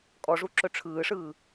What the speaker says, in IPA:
kʼ ɔ ʐ u ǁ ɵ ʈ͡ʂʰ ɯː ʂ ɯː

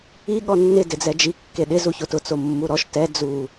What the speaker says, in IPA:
i ɠ ɔ nː ɪ d ɪ d͡z ɛ d͡ʒ i kː e ɗ ɪ z u ç o t ʊ t͡s o mː u ɾ ɔ ʃ t ɛ d͡z u

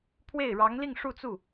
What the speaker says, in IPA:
pʰ w e˥˩ ɪ̯ ɻ ɑ˧˥ ŋ l i˥˧ ŋ ʂ u˥˧ t͡s u˥˩

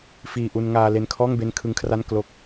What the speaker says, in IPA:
f iː˨˩ ʔ u˧ n ŋ aː˧ l e˧ n kʰ ɔː˥˩ ŋ b e˦˥ n kʰ ɯ˦˥ ŋ kʰ r a˥˩ n k l o˦˥ k̚

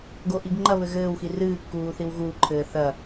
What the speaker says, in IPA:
ɡ o ʔ i ɡ ŋ͡ǃ ɐ β ɘ ɣ ɘː w x i r ɨː kː uː θ i w ɣ uː ǃʰ ɘː θ ɐ

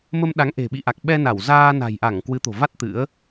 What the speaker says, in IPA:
m ə˧ m ɗ a˨˦ ŋ ʔ e̤˨˩ ɓ ḭ˧˨ ʔ a˨˩ k̚ ɓ ɛ˧ n a˧˩ w z aː˧ n a̤˨˩ j ʔ a˧˩ ŋ k w ɨ˨˦ t̪ o̤˨˩ v a˦˥ t̚ t̪ ɨ̰˧˥ ə̯

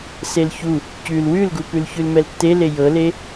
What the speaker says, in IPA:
s e l ç u | c ʉ l w ʉ l ɡ u p ʉ l ç ʉ l m ɛ l tː e l e j ɤ l e

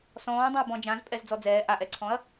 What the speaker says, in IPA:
s ɔ̃ː dˤ ɛ̃ ɐ̯ b ɔ̃ d͡ʒ ã z pʼ ɛ z d͡z ɔ d͡z ɛː ʔ a ʔ ɛ ǀʰ ɔ̃ ɐ̯

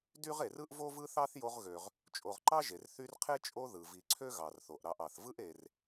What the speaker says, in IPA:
d y˥ ʁ e˨ r ɯ˥ ʔ v o˥ v ɯ˥ θ ɑ˥ θ j o˦ ʁ ɣ ø˨ ʁ | t͡ʃʼ o˨ ʁ ǃ ɑ˥ ʒ e˩ r θ y˦ r qʰ e˥ t͡ʃʼ o˦ ð ɯ˩ v i˨ ǀʰ ø˥ ɣ ɑ˩ r θ o˩ ʔ ɾ ɑ˨ ʔ ɑ˩ θ v ɯ˥ ʔ e˨ r

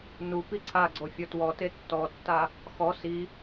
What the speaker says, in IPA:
n u p i ǀʰ a ɡ͡ǀ o fʲ ɔ t w ɔ t e tː ɔ tː a | x ɔ s i

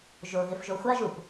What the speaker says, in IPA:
ʒ o ɣ ɪ f ʒ o xʷ a ʒ u p

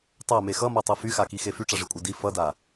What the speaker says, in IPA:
tˤ a m e x ʌ m a tˤ ɤ f y x a k i x e f y ʈ͡ʂ a ʐ i kʷʼ a d i f ʌ d a

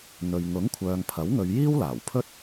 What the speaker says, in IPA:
n̪ ɵ˨ ɥ ŋ ʊ˨˥ ŋ kʷʰ œː˨ ŋ pʰ ɐ˨˥ w ŋ ɵ˨˧ ɥ j iː˥ w l aː˨˩ w pʰ ɵ˥ t̚

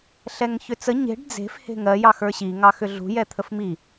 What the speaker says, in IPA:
ɬ ɛ ŋ ç ʏ t͡s ə ɲ e̤ ɖ d͡z e̤ f h e̤ ŋ ɜ j ɑ x ə˞ ɕ i ŋ ɑ x ʏ ɮ ṳ j ɛ t̪ʰ ə f m i

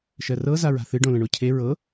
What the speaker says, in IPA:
ʃ ɜ r ɤ z a ɹ a̤ θ ɨ ɖ õ l ə̃ ɳ o cʰ e ɹ ɤ

